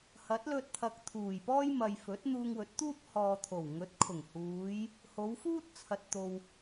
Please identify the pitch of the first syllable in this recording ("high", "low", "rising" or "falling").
rising